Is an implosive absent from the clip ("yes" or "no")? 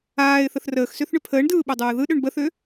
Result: no